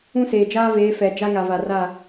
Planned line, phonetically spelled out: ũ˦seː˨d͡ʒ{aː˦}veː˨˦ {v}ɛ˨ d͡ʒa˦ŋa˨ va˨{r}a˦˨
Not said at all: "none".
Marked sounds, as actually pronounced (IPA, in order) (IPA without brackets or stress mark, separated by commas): aː˦, f, r